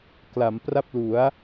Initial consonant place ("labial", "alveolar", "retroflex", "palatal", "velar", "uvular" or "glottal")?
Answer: velar